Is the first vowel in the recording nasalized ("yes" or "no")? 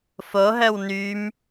no